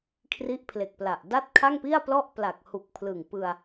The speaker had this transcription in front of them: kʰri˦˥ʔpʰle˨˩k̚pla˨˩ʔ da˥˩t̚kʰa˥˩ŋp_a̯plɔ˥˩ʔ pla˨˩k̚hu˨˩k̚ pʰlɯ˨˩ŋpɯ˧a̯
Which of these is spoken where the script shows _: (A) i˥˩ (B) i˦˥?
A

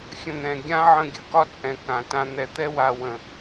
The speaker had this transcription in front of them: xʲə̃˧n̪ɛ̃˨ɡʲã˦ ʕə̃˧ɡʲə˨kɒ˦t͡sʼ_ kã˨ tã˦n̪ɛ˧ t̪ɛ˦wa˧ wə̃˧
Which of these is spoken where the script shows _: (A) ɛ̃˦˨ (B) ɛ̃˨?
B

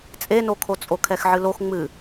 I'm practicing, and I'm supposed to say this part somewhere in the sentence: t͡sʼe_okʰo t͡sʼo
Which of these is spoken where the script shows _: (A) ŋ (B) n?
B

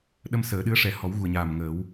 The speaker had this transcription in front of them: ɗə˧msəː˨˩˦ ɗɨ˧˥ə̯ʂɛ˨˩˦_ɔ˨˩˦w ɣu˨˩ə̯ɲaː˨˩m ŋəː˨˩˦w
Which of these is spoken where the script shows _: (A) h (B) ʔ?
A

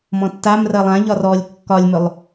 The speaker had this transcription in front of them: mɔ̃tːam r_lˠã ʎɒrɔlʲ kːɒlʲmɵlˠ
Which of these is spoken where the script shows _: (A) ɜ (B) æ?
A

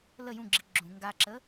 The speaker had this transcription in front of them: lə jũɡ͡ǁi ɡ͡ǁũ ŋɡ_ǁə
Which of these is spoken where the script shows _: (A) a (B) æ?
A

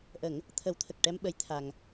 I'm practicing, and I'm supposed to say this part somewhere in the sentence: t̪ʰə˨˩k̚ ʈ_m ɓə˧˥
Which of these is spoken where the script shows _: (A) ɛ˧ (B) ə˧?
A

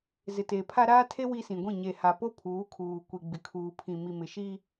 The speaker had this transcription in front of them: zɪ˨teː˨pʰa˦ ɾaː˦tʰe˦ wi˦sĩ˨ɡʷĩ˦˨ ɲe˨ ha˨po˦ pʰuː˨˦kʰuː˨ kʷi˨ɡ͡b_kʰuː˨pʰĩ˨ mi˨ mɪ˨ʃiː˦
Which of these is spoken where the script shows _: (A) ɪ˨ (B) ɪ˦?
A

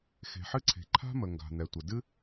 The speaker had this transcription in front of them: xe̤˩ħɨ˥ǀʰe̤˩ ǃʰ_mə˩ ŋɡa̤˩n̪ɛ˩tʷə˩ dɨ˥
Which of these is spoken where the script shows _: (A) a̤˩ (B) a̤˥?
B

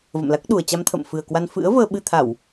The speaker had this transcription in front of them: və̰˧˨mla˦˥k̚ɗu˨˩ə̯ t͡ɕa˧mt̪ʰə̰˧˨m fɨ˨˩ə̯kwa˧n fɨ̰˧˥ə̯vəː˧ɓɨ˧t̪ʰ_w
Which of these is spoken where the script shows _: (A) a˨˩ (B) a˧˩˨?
B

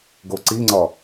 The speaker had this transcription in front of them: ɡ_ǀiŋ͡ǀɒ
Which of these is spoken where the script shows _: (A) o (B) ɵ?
A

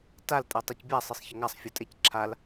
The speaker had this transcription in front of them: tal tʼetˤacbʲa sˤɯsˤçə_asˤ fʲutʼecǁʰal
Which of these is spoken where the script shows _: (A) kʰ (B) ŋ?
B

